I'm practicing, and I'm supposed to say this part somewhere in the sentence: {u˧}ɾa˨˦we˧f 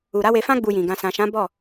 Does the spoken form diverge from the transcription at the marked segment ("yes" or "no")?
yes